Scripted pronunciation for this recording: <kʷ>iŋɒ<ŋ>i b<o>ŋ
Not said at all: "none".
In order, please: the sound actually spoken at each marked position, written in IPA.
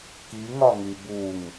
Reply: k, ŋ, u

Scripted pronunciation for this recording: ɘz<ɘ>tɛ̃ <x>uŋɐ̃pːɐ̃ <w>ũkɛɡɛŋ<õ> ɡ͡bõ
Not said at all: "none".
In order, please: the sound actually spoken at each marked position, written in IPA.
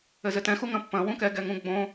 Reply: ɘ, x, w, ũ

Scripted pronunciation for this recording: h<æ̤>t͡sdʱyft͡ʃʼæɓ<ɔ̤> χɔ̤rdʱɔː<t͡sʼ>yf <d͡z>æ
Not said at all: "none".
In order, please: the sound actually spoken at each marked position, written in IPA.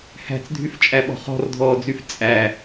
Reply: æ̤, ɔ̤, d͡z, t͡sʼ

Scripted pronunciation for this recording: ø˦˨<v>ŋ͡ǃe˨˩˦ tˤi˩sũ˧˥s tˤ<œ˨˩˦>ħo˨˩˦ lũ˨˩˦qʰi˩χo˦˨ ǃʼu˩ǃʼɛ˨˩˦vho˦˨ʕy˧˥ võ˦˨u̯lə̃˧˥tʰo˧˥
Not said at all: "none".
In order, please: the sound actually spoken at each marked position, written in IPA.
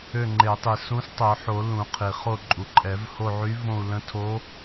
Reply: none, œ˨˩˦

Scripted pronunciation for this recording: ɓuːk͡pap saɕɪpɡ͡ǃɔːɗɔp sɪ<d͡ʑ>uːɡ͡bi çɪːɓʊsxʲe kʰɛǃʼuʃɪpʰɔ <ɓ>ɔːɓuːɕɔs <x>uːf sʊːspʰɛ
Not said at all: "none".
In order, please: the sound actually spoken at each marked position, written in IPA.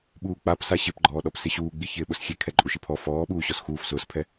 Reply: ɕ, f, x

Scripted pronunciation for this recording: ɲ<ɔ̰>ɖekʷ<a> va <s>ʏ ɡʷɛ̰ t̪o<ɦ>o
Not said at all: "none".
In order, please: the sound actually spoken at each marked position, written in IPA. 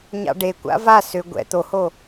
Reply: ɑ̰, a̰, s, h

